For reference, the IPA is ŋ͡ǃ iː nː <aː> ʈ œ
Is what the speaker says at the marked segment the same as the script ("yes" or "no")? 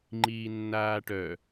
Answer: yes